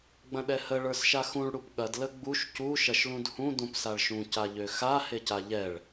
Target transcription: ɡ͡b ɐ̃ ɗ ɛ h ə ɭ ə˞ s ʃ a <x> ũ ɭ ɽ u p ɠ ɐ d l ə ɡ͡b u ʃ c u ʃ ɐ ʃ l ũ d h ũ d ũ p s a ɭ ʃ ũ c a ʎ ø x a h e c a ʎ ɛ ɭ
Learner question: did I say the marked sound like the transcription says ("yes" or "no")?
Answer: yes